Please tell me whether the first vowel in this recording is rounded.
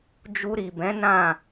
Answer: yes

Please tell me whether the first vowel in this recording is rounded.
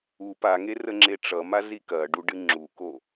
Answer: yes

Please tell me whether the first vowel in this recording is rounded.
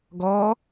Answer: yes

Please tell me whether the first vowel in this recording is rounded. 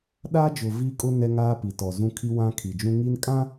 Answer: no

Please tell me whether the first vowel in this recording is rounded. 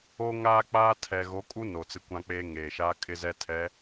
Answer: yes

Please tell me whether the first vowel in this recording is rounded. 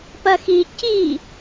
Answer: no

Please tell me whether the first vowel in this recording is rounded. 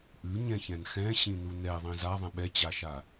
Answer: yes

